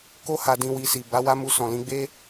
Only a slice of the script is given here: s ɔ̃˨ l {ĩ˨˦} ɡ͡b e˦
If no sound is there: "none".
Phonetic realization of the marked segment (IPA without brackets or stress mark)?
ĩ˧